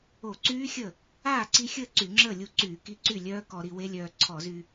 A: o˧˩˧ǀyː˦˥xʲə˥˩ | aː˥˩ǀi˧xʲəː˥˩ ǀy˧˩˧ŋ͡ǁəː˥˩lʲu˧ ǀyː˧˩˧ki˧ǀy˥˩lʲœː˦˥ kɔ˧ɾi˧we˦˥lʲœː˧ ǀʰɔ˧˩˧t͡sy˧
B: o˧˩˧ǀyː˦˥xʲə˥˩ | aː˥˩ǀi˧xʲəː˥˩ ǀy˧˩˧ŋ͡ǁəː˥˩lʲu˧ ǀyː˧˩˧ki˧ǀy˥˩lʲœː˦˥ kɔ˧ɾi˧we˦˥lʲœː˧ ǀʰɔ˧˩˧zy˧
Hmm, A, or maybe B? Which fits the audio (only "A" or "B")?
B